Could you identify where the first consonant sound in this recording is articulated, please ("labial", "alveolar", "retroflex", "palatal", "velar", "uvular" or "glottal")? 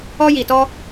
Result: palatal